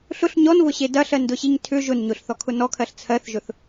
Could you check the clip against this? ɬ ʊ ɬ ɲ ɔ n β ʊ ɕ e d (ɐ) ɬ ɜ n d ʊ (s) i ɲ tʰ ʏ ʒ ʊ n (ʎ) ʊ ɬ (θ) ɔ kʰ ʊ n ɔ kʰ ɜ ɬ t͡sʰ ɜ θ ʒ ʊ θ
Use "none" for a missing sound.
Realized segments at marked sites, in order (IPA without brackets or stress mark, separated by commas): ɐ, ɕ, ɲ, θ